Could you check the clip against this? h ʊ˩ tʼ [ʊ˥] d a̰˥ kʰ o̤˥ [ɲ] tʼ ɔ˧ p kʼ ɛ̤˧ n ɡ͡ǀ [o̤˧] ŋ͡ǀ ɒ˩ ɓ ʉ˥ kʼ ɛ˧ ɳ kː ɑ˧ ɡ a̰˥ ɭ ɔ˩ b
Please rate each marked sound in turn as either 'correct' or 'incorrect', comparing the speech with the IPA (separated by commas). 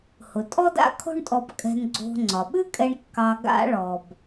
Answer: incorrect, incorrect, correct